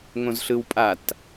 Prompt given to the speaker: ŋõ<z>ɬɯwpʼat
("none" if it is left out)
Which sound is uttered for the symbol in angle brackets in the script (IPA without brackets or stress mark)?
z